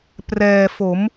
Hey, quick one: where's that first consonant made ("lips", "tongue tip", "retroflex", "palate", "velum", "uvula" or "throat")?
lips